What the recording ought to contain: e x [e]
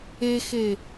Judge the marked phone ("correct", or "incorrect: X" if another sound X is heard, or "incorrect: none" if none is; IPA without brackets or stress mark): correct